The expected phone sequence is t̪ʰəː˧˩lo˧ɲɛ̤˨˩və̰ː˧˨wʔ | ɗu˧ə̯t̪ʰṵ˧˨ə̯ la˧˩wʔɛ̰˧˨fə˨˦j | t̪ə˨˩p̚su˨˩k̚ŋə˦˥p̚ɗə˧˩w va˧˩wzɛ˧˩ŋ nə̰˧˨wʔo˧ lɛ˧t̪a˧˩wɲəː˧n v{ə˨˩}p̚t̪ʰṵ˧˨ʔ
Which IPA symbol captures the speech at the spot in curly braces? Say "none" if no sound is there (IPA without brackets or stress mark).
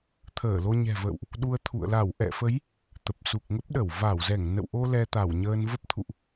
ə˦˥